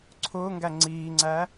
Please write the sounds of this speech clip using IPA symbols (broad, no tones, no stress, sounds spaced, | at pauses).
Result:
ǀʰ ʊː ŋ ɡ æ ŋ͡ǀ iː ŋ͡ǀ æ